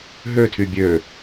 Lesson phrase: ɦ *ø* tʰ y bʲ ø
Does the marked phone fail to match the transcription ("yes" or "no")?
no